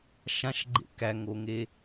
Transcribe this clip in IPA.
ʃ ã ʃ ɡ͡ǃ ḛ k æ ŋ o ŋ e

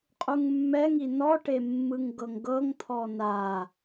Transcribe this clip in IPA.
qʼ u ŋ mː ɛ ŋ i n ɔ ʈ e mː ɯ ŋ ɡ ɤ ŋ ɡ ɤ ŋ t̪ʰ ɔ n a

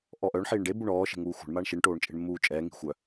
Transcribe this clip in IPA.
ʔ ɔ ʔ œ ɳ ħ iː ɳ ɖ e b u ɳ ɔː ʃ e̤ ŋ uː xʷ a̤ ɳ m a ɳ ʃ i ɳ ʈ oː ɳ t͡ʃʼ e̤ ɳ mː uː t͡ʃʼ ɛː ŋ i̤ xʷ œ

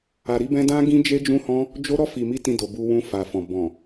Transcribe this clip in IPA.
a˨ ɾ i˧ b ɛ̃˧ d ã˦ ɡ ĩ˦ d͡ʒ e˦ d͡ʒ ũ˦ h ɔ̃˦ | d͡ʒ o˦ ɾ ɔ˦˨ f i˨ m i˧ t ĩ˧ d o˨ b u˧ w ũ˧ f a˨ f ɔ̃˨ b ɔ̃˨

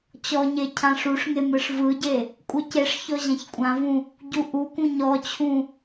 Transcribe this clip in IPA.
t͡ɕ ɔ ɲ e cʰ ã ʂ u ʂ ŋ e m ɯ ʂ v ɯ ɟ e | kʷʼ ɯ c e ʂ ç ɔ ʑ ã ç kʷʼ ã v ũ | ɟ u ʔ u k ũ ɲ ɔ t͡ɕʰ ũ

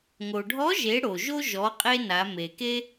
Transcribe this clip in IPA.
ŋ o˩ ɖʱ ɔ˧˥ ʒ e˩˧ ɽ o˩ ʒ o˥ ʒ ɔ˩˧ qʼ e˧ n a˩˧ m e˩ k e˥

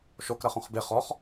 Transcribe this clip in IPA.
ʃ o k ɾ ɐ χ õ χ b e χ ɔ χ

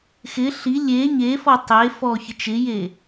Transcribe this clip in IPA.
x ɪ ɬ i lʲ e ɲ e f ɔ tˤ e f ɔ ç ɪ t͡ʃ ɪ j e

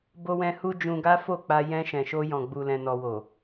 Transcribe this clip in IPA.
b o˧ w ɛ̃˧ h u˧ d͡ʒ ũ˧ ɡ a˦ f o˦˨ k͡p a˧ j ɛ̃˧ ʃ ɛ̃˨ ʃ o˧ j ɔ̃˨ ɡ͡b u˨ l ɛ̃˨ n ɔ˨ w o˨

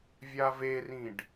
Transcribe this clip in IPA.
vʲ a v e r ĩ ɖ

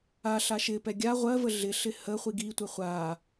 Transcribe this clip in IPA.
a ɬ a ʃ ɪ p ɛ ɡʲ a ʁʷ ɜ v ə ɮ ɪ ɬ ɪ h ə χʷ i ɡ i tʷ ɛ χʷ a

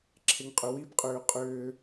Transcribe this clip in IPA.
ǁʰ e ŋ qʼ ʏ w i b qʼ ʏː qʼ ʏː

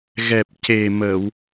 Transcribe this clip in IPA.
ɣ ɛ˨˩ p̚ c e˨˩ m ə˨˩˨ w

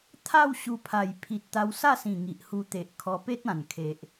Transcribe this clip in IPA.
t̪ʰ a˥˧ w ɕ u˧ pʰ a˨˩ j pʰ i˨ t̚ t̪ a˧ w s a˥˧ s ĩ˨˩ ŋ i˨ ʔ h u˧ t̪ e˨ ʔ kʰ ɔ˧ p e˦ t̚ ã˨˩ n kʰ e˨ ʔ

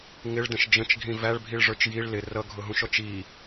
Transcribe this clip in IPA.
ŋ ɪ ɭ d ə̃ ʃ d͡ʒ ə̃ t͡ʃ ɡʱ ĩ v æ ɭ bʱ i ɭ ʐ ə˞ t͡ʃ j i ɭ l ɪ r ʌ ɡʱ ʊ ɦ ũ ʃ ɔ t͡ʃ i

